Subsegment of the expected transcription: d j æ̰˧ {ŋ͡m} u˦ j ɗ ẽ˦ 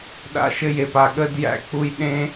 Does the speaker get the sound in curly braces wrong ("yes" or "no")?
yes